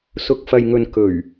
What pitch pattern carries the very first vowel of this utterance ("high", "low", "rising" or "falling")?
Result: low